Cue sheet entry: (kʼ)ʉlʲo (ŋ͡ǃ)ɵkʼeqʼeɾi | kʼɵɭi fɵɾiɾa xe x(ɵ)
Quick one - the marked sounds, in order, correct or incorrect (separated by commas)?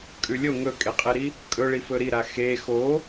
correct, incorrect, incorrect